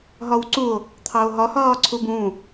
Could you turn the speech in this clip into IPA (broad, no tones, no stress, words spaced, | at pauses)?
ɦɒwǀuo̯ | t̪ʰɑo̯ɦɒ hɒːǀʰubũː